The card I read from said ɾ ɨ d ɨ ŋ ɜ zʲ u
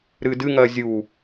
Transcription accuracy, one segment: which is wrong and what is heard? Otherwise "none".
none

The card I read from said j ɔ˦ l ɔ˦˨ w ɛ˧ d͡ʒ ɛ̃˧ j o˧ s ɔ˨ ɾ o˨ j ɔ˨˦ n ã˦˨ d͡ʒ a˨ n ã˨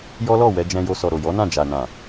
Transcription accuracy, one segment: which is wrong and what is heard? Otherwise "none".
none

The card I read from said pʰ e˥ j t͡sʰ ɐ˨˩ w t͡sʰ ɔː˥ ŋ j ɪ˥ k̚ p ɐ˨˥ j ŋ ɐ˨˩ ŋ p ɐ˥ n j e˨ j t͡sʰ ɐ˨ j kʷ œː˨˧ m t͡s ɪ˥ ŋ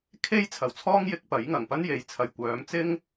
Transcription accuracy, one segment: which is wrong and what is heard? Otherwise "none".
pʰ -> kʰ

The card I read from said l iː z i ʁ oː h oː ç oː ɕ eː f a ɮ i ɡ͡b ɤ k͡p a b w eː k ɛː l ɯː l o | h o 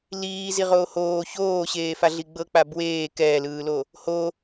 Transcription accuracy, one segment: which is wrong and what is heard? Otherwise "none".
none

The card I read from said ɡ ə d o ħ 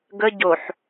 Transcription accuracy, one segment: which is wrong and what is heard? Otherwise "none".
d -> ɟ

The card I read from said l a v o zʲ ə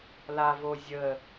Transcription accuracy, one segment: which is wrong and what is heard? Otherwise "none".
none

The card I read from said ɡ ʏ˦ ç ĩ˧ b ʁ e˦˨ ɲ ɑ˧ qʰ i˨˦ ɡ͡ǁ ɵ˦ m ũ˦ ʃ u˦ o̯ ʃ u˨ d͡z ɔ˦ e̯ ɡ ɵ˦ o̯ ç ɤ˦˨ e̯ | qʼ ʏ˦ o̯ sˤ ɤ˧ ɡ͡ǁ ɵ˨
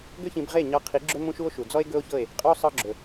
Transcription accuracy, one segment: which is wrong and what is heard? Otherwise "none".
none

